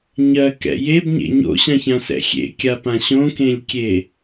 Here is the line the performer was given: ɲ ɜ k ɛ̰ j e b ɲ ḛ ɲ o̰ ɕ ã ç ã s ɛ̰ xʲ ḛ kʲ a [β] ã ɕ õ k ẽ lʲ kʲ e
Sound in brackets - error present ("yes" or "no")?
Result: yes